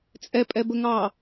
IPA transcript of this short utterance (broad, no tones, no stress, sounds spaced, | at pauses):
t͡sʼ ɛ pʼ ɛ b ə ŋ ɑ